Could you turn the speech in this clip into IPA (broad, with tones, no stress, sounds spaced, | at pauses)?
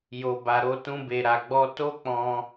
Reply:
j o˨ b a˨ ɾ o˧ t ũ˧ b e˨ ɾ a˨ ɡ͡b ɔ˧ t o˦ k͡p ɔ̃˧